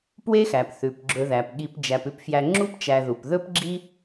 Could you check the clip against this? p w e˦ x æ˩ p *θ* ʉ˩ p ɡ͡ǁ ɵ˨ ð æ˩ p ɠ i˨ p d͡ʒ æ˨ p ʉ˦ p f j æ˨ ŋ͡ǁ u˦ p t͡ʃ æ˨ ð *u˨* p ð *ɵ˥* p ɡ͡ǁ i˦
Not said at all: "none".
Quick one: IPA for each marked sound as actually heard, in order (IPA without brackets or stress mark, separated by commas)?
θ, u˩, ɵ˥